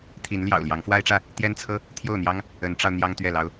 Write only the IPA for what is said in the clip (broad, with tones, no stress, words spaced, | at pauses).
t̪ʰi˨˦nljɑ̰˨˩ʊ̯ ljɑ˨˦ŋfwa˦ɪ̯ʈ͡ʂä˥˨ | t̪jɛ˦nt͡sʰɤ˦ | t̪ʰjo˥˨ʊ̯n̪jɑ˦ŋ | ə˨˦nʈ͡ʂɑ˧ʊ̯ n̪jɑ˦ŋt̪ɥɛ˥˨lɑ˦ʊ̯